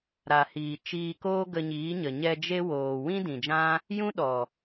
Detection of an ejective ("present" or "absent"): absent